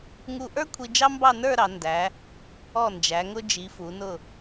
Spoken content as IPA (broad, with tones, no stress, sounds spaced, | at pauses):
ŋ u˧ ʔ ə˞˥ kʷʰ i˧ d͡ʒ ɑ˥ m b ɑ˥˧ n ə˞˥˧ ɾ ɑ˩˧ n d æ˩˧ | ɔ˧˩ n d͡ʒ æ˩˧ ŋ ʊ˧ d͡ʒ i˩˧ f u˩˧ n ʊ˧˩